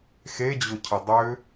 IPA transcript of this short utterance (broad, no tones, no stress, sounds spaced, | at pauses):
x e d͡ʑ ʊ cʰ ə dˤ ʏ